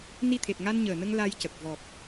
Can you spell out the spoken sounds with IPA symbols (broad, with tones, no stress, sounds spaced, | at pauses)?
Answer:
n i˧ t̪ʰ e˨˩ t̚ ŋ a˧ n ɲ əː˨˩ n ə˧ ŋ l a˧ j c ə˨˩ k̚ v ɔ˨˩ k̚